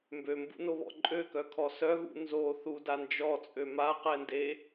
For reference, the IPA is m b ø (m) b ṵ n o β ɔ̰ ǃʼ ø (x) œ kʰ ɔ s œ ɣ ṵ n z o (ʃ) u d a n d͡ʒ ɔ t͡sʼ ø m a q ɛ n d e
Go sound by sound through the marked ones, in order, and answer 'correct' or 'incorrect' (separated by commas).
correct, incorrect, incorrect